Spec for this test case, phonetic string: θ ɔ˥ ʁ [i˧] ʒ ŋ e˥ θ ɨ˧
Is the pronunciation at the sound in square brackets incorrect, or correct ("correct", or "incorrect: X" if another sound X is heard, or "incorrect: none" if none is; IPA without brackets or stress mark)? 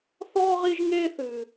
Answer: incorrect: i˥